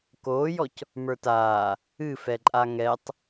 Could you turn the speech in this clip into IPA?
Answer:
k oː j ɔ c | m ə˞ t aː | ɨ f ɛ ǃʼ a ŋ ɛ tˤ

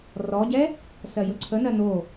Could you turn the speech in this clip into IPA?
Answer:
r ɔ ɟ ɛ | s ɜ j ɵ ǀʰ ə n ɜ n o

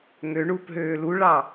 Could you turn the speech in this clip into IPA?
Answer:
ŋ ø ɳ u p ɦ øː l u ɭ ɑ

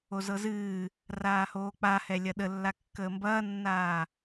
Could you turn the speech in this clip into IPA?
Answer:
o z ɤ z ɨː | r aː h oː k͡p a h ɛ lʲ ɐ ɗ ə lː a kː əː m b ɐː nː aː

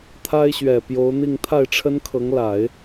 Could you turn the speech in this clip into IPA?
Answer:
t̪ʰ a˥ ɪ̯ ɕ ɥ ɛ˨˩ p j o˧˥ ʊ̯ n̪ i˥˧ ŋ t̪ʰ a˥˩ ɪ̯ ʈ͡ʂʰ ə˥ n kʰ ɤ˧˥ ŋ l a˨˩˦ ɪ̯

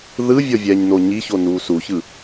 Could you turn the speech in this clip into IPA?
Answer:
ð ɯ vʲ ɔ vʲ ɛː ɲ n o ɲ i ç o n uː s u ç ɯ

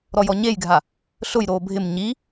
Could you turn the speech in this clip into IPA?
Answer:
ɾ ɔ j ɔ ɲ e j ɡʱ a | ɬ ʊ j ɾ oː bʱ ɪ m ɲ i

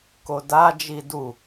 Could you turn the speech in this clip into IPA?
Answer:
k o d a d͡ʒ i d u

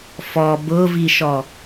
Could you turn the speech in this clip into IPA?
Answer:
f ɔ b ʊ v i ʃ ɔ

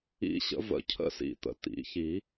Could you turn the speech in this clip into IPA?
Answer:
ḭ˧˥˧ ɕ ə̰˨˩˦ v ə̰˨˩˦ cʰ ə̰˦˥ s ḭ˨˩˦ t̪ ə̰˩˧˩ t̪ ḭ˨˩˦ ç i˨˩˦

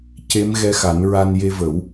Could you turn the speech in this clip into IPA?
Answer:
c e˧˥ m ɣ ɛ˧ x a˨˩˦ n ɹ a˧ n j e˧ v ə˨˩˦ w

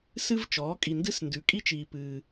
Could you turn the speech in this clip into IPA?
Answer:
s ɨ˥ v t͡ʃ ɔː˩˥ kʼ i˨ n d ɨ˥ s n d ʉ˩˥ kʼ i˥ t͡ʃ iː˨ p ɨː˨

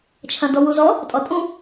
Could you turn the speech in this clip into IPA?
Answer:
t͡ʃʰ ɐ̃ d ɔ w u z ɔ | tʼ ɔ tʼ ũ

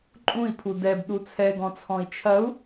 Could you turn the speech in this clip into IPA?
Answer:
ǃʼ ũ i̯ pʰ u d ɛ b ɗ u t͡sʰ ɛ ɡ ɔ̃ t͡sʰ ɔ̃ i̯ t͡ʃʰ ɐ u̯

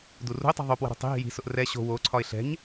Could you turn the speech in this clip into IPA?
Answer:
d u r ṳ ɪ̯ tˤ ɛ̤ ðˤ o p w ə̤ ɾ ṳ tˤ i̤ ɦ i̤ j i̤ s ʊ ʔ r ɛ ɕ o̤ w o ǀʰ ɒ ɪ̯ ɬ ɛ̤ ɲ

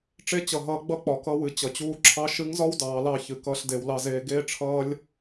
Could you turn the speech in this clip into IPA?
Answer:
ʈ͡ʂ e˧ t͡ɕ ʌ˩ ɦ ʌː˩˧ ɡ͡b ʌ˧ k͡p ɒ˩ k ʌ˧ w ɨ˩˧ t͡ɕ ʌ˩ t͡ɕ uː˧ ǁʰ ɑ˧˥ ʃ ɨ˧˥ ŋ z ɒ˥ w d ɑː˩˧ l ɑ˧ ç ɨ˩˧ k ʌː˧ ɬ d e˩˧ w l ɑ˧ z eː˧ ɡ eː˥ ʈ͡ʂʰ ʌː˥ lʲ

